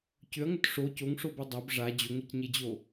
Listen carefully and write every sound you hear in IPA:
c ʏ ɐ̯ ŋ ʏ t ʂ o c o ŋ ʂ o b e dˤ a b ʐ a d͡ʑ o ŋ e c ɲ e d͡ʑ o

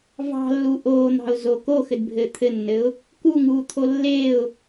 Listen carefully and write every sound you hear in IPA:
v ɑ̤ lː u ʔ oː n̪ ɑ̤ ʊ̯ z o k o x ɘ d bʱ ɘː t̪ʰ ɘ nː ɘ ʊ̯ | k u ŋ uː t̪ʰ o lː e ʊ̯

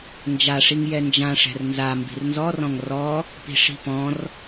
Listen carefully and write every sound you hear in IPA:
n d͡ʒ a ʂ i ŋ j ɛ n d͡ʒ ã ʂ ɛ̤ r n z a m b i̤ r n z ɔ r ɔ̃ ŋ r ɔ | p i̤ ʂ i̤ p ɔ̃ r

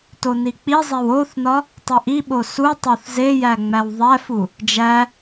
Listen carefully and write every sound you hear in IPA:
t o n i k͡p i zˤ e w o θ n ɒ | tˤ e ʔ i ɓ o s u tˤ o θ z e j æ ŋ͡m æ w ðˤ æ f u | d͡ʒ æ

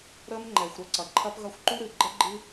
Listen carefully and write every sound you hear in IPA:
ɾ ə˦ m ŋ͡ǃ ɛ˨ xʷ ɾ ə˦ ǀ ɐ˨ ǃʰ ɐ˦ p ɣ ɐ˦ xʷ ǃ u˦ ɾ ɨ˨ ɡ͡ǃ ə˦ ɡ͡ǃ ɨ˦

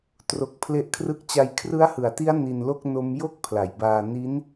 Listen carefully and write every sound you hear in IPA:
t r o˦˥ k̚ pʰ l e˥˩ ʔ kʰ r ɯ˥˩ k̚ t͡ɕ a˧ j kʰ r ɯ˦˥ a̯ h ɯ˨˩ a̯ t i˦˥ a̯ n i˧ n l o˥˩ k̚ n o˦˥ m j o˥˩ k̚ pʰ l a˩˦ j b aː˧ n i˦˥ n

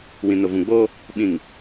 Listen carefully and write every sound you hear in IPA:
w ĩ˨ n ʊ˨ v ũ˨ ɡ͡b oː˦ | ɓ ĩ˨ ŋ

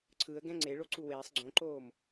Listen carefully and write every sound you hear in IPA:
ǀʰ ɯ ə̯ ɡ ɛ̃ ŋ͡ǀ e ɭ o ǀ u w eː sˤ ɡ͡ǀ õ ǃ oː m

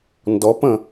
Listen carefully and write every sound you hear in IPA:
n d ɔ p ə̃

